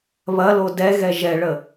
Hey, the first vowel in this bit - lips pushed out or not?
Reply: no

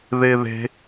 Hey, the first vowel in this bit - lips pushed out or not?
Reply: no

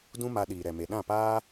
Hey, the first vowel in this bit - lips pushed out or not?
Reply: yes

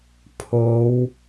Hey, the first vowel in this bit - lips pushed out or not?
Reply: yes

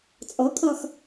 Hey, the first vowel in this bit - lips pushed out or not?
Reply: yes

